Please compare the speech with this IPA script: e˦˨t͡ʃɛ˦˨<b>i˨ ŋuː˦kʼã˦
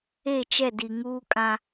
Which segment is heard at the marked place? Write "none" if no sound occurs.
d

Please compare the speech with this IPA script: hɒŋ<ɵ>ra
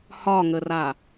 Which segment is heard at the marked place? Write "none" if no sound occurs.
ə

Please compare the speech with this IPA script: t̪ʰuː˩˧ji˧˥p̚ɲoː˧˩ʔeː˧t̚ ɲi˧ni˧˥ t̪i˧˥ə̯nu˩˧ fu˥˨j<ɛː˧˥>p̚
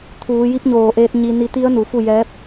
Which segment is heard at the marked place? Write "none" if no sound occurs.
ɛː˧˥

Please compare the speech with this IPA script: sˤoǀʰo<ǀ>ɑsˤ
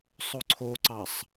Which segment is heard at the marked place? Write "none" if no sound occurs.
ǀ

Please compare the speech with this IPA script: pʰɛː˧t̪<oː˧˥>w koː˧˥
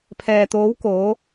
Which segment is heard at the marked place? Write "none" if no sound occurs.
oː˧˥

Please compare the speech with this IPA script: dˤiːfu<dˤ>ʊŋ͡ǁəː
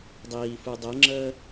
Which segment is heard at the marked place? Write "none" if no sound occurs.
dˤ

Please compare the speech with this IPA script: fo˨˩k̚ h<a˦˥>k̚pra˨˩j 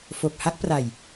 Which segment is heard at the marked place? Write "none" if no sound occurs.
a˦˥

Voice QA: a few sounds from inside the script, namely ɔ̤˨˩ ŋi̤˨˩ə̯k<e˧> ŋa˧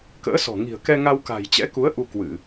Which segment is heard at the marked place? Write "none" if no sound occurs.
ɛ˧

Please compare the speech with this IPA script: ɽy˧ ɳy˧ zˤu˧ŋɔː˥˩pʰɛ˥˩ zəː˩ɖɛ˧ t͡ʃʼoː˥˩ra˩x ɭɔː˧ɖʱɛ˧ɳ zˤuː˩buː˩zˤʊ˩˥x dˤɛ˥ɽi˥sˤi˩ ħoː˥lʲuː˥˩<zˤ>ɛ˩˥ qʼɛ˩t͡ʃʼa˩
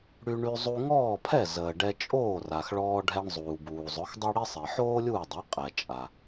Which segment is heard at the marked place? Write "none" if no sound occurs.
dˤ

